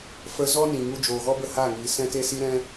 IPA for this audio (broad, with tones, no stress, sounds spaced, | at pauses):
f ə˦ z ɔ˦ n ĩ˨ ŋ u˧ d͡ʒ oː˨ ɣ ɔ˦ b ə˦˨ h a˦˨ ŋ iː˨ s ɛ̃˦ t e˦ s i˦ ɾ ɛ̃˦